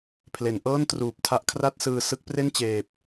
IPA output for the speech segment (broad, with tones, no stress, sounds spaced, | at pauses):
pʰ l e˩˦ n ʔ ɤː˥˩ n t r uː˨˩ p̚ tʰ a˦˥ ʔ kʰ r a˥˩ t̚ s ɯː˧ s ɯ˦˥ k̚ p r e˥˩ n t͡ɕ eː˨˩ p̚